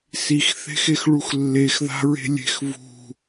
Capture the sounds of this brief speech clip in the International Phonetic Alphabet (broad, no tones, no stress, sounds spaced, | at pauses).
s i x θ e̤ x e x ɭ u x lː e x ð a̤ ɹ e̤ lʲ e̤ x v ṳ